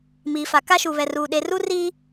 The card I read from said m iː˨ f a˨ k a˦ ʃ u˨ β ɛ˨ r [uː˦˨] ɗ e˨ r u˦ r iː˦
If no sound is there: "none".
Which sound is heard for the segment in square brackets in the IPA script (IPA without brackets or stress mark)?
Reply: uː˨